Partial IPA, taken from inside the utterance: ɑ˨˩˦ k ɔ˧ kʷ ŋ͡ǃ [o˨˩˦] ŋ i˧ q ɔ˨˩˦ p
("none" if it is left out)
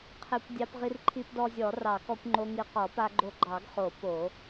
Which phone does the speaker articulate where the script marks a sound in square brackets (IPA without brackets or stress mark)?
o˧